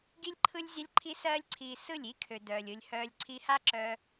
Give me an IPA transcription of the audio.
ɡ i˦ lʲ ǃʰ ɯ˦ lʲ zʲ ɛ˦ lʲ ǃʰ i˦ s ɜː˦ lʲ ǀʰ iː˧ s ɯ˦˨ lʲ i˦ kʰ ø˨ d œː˨ lʲ ɯ˧ lʲ h œː˧ lʲ ǀʰ i˧ h a˦ ǁ œ˧

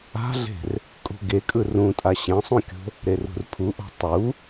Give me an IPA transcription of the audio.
a̤ ɮ e̤ r | kʼ ṳ ɡ e kʼ ɯ r ũ tʼ a ɕ ẽ sˤ ũ kʲ o̤ | ɾ e r ṳ r pʰ u ʔ o̤ tˤ u

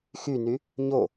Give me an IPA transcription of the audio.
x y n y | ɲ o

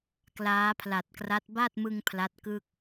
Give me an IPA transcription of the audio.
k l aː˦˥ pʰ l a˨˩ t̚ k r a˦˥ t̚ b a˥˩ t̚ m ɯ˧ ŋ pʰ l a˦˥ t̚ k ɯ˥˩ k̚

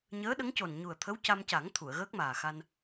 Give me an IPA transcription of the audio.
ɲ əː˧˥ ɗ ə˧˥ ŋ c o˨˩ n ɲ u˨˩ ə̯ t̪ʰ ə˧˥ w c a˧ m c a˨˩˦ ŋ t̪ʰ u˨˩˨ ə̯ ɣ əː˦˥ k̚ m aː˨˩ x a˧ n

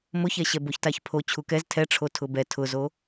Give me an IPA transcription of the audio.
m ʊ ç ɛ ɕ ɛ b o ç t a ç pʰ o t͡ɕʰ u k ɛ z tʰ ɛ ʈ͡ʂʰ o tʰ ʊ b ɛ tʰ ʊ z o

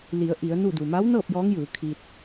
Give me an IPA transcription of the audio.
l i˩˧ ə̯ ʔ i˩˧ ə̯ n u˥˨ d u˩ m a˧˥ w n ɤː˥˨ p̚ j ɔː˧˥ ŋ j ɯː˩˧ kʰ i˧ t̚

